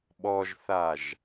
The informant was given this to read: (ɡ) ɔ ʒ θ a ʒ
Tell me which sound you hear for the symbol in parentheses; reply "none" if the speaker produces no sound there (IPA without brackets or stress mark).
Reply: ɓ